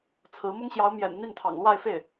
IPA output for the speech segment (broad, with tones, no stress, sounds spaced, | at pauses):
t͡sʰ ɹ̩˧˥ m ʊ˥ ŋ ɕ j ɑ˧˥ ʊ̯ m j ɛ̰˨˩ n n̪ i˥˩ n t̪ʰ ɑ̰˨˩ ŋ l w a˥˧ ɪ̯ f e˥˩ ɪ̯